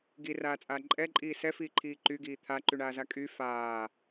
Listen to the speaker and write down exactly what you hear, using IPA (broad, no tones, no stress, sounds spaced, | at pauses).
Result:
ɡ i r aː t͡sʼ aː ǃʼ ɛ ǃʼ iː s ɛ f iː ǃʰ iː ǃ y ɡ iː t̪ʰ a ǃ y ɳ aː z a kʼ y f aː